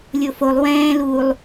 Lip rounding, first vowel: rounded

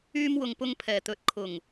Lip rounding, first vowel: rounded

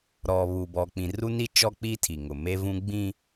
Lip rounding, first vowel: rounded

